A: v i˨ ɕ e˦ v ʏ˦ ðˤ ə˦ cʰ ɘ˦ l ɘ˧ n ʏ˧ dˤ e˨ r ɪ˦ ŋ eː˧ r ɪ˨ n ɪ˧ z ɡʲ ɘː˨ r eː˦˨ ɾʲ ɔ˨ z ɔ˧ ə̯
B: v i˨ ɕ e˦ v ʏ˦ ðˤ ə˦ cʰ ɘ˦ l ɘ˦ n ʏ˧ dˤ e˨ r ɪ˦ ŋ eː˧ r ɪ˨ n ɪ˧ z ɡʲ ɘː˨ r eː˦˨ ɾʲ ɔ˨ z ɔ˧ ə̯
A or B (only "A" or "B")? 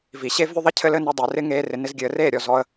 B